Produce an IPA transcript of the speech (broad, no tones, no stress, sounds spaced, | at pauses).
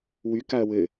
w y k a ɐ̯ w ɘ